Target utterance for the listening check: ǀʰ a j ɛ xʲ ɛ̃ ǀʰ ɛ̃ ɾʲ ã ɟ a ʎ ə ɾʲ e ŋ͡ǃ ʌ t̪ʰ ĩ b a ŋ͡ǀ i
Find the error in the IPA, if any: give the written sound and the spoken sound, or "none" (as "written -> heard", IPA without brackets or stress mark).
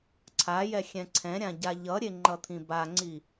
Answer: ə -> ʌ